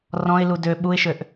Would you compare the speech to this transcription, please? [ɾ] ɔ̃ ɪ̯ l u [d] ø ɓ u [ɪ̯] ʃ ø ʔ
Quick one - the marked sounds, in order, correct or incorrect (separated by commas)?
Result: incorrect, correct, correct